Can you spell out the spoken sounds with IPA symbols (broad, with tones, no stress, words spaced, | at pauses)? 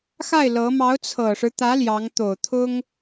xa˥˩ɪ̯lɤ˧˥ mɑ˧˥ʊ̯t͡sʰɤ˨˩ʂɻ̩˦t̪ä˧˥ ljɑ˧˥ŋ t̪o˨˩ʊ̯t̪ʰʊ˥ŋ